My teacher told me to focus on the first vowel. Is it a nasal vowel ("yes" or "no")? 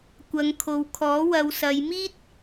no